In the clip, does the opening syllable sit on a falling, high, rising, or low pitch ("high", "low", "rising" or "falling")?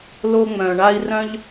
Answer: high